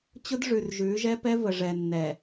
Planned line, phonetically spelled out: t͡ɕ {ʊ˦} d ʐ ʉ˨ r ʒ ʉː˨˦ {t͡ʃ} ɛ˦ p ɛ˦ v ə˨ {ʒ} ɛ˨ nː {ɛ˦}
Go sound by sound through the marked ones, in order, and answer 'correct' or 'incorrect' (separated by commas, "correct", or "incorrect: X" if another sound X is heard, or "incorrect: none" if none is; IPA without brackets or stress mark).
correct, incorrect: ʒ, incorrect: ʐ, incorrect: ɛ˨